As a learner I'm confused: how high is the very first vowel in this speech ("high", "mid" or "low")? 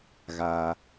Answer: low